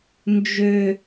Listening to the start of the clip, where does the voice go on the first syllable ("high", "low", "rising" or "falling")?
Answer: high